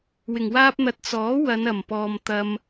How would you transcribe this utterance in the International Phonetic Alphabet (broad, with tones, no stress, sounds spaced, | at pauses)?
w ɪ˨˩ ŋ w aː˥ p̚ n̪ ɐ˧ t̚ t͡s ɔː˨˥ w ɐ˨˧ n ɐ˨˩ m p ɔː˨ m t̪ ɐ˧ m